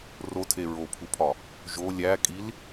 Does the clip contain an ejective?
yes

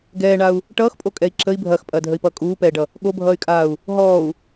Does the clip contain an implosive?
yes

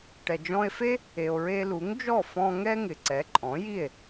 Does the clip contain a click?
yes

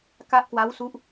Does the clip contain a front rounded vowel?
no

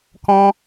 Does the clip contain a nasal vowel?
yes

